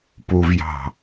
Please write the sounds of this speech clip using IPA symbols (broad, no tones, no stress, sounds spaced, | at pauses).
p u v j ɑ̤